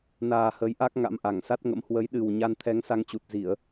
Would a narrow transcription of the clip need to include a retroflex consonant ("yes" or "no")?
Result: no